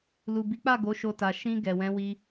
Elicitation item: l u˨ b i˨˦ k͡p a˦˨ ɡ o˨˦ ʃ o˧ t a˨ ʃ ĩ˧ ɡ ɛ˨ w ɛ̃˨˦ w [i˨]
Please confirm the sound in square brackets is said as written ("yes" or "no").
no